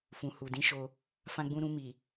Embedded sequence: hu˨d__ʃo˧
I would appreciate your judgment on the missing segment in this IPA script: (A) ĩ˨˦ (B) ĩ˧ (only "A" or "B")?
A